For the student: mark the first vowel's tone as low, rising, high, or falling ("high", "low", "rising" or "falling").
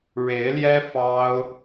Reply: rising